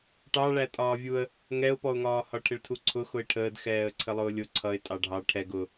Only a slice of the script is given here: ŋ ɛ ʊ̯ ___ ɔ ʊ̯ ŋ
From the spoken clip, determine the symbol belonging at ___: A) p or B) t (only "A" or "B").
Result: A